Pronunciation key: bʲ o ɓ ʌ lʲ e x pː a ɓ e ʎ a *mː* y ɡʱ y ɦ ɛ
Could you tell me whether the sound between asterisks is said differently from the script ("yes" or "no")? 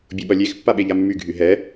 no